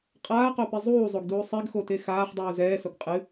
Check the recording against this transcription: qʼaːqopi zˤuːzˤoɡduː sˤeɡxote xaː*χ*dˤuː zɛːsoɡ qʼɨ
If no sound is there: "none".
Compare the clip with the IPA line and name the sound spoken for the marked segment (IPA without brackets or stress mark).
χ